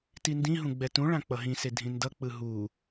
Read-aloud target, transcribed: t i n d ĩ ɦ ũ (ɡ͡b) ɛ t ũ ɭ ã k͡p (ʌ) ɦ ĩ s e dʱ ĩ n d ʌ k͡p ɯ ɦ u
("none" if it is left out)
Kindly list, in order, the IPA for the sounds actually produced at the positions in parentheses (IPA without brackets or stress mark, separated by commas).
ɡ͡b, ʌ